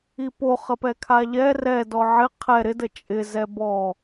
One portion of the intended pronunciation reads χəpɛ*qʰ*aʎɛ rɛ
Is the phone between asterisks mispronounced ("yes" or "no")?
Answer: yes